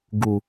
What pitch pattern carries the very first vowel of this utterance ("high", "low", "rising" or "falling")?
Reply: low